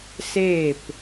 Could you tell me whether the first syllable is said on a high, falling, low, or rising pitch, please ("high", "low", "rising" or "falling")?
falling